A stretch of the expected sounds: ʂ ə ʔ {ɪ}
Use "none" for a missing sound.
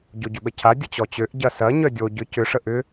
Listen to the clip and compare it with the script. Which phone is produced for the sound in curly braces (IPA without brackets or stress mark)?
ʏ